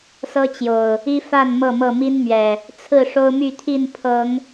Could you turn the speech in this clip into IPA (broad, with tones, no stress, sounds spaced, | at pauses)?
s ɤ˦ t͡ɕ j o˨˩ ʊ̯ | i˦ f a˥˨ n m ɤ˥˨ m ɤ˥˨ m i˦ n m ɥ ɛ˨˩ | t͡sʰ ɹ̩˥˨ ʂ o˦ ʊ̯ m y˥˨ t̪ʰ i˥˨ n pʰ ɤ˨˦ ŋ